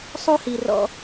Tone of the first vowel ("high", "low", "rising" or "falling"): high